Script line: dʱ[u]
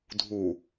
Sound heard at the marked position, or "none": u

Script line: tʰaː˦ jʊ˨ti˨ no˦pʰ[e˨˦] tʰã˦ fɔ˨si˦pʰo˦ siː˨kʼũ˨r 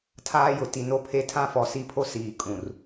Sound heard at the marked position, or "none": e˦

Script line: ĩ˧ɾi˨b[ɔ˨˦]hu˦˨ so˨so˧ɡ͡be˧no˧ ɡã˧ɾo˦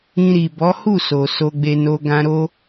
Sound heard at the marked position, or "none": ɔ˨˦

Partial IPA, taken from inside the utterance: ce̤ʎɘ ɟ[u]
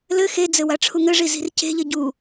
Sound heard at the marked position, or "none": u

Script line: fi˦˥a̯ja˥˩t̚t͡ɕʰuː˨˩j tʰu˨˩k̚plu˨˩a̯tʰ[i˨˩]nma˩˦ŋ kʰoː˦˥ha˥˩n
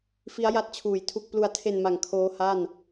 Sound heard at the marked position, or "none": e˨˩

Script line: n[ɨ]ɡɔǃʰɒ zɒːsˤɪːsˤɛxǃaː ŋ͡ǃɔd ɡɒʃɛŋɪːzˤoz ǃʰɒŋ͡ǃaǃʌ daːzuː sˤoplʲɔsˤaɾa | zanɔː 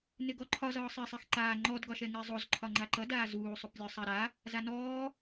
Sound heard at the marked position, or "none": ɪ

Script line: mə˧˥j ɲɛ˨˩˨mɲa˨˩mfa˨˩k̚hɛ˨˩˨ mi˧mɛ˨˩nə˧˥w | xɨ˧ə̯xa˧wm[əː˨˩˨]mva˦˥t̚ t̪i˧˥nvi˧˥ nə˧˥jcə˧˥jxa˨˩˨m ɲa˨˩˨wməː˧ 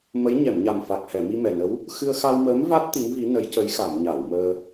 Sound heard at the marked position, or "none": əː˧˥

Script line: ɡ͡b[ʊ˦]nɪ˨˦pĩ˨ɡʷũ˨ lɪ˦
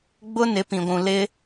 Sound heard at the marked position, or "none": ʊ˦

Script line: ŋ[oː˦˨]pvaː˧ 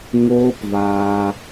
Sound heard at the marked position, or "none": oː˦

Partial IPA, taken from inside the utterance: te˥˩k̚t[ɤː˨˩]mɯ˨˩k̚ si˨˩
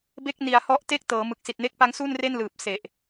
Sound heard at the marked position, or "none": ɤː˩˦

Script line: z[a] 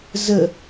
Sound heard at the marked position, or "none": ə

